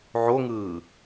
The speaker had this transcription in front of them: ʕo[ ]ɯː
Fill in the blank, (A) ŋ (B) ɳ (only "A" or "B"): A